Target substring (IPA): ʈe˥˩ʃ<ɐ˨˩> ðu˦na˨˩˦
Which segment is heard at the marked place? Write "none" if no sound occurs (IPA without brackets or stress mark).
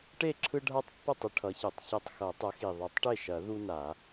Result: ɐ˨˩˦